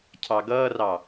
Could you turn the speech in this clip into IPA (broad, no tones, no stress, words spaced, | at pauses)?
cʰɑɡʌːrɑ